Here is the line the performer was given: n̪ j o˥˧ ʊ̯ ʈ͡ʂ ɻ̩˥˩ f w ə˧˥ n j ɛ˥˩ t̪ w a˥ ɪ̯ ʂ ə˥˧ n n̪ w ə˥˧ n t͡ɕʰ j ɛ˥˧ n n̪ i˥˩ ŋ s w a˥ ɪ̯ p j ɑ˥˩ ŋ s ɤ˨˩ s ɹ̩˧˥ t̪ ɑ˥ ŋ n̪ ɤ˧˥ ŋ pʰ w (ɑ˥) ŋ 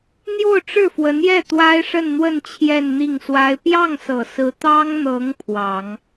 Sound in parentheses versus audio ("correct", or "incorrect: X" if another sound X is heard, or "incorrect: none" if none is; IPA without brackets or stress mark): incorrect: ɑ˨˩˦